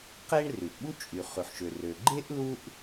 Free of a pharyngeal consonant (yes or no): no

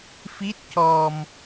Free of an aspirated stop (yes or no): yes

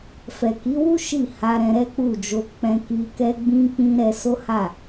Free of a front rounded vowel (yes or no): yes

